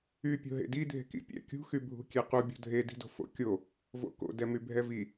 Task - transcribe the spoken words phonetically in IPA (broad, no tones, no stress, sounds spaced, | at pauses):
y pʲ o̤ ɦ ḛ d i dʱ e̤ k ḭ pʲ ɛ̰ kʲ ṳ x y bʱ ṳ kʲ ɛ q u bʲ o̤ dʱ e d i̤ d o̤ f o̰ kʲ o | v o̰ k o̰ d ɛ m y bʱ ɛ v i